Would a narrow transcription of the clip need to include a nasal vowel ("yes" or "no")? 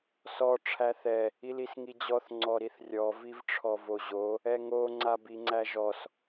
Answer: no